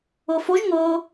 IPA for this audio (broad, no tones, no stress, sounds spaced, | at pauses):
ɤ f o ʒ ŋ ɤ